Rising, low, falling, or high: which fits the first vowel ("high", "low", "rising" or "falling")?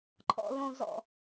low